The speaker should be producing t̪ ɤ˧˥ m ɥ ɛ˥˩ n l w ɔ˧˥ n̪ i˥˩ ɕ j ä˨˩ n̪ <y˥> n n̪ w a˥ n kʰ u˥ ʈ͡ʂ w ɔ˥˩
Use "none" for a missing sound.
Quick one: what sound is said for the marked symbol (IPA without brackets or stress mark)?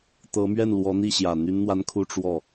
y˥